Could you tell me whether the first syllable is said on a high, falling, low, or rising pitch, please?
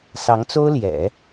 rising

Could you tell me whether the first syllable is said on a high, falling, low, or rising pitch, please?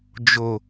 low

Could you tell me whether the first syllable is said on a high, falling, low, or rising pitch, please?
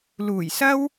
low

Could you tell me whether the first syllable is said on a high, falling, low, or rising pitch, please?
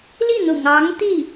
falling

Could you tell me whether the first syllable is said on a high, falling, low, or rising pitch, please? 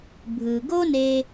low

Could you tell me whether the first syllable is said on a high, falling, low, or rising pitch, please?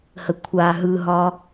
low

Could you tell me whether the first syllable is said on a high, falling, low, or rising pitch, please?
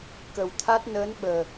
low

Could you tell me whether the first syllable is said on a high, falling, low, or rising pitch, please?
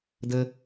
low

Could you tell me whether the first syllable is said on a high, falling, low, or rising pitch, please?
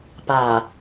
low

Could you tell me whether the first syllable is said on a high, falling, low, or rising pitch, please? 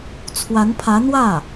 rising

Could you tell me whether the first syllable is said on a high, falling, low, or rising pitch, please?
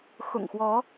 low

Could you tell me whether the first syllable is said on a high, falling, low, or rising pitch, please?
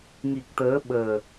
low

